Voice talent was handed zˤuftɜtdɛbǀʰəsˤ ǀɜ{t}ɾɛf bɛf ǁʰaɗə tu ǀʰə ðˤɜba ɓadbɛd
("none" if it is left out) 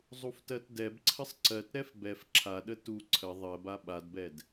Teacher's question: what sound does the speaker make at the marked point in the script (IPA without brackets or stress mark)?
t